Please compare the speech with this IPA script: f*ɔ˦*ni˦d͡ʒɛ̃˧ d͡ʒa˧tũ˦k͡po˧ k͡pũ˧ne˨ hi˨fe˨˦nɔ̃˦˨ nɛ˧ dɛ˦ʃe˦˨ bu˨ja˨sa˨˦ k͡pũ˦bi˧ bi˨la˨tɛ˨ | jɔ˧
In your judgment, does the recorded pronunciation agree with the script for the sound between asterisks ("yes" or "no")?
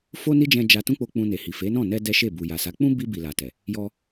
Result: no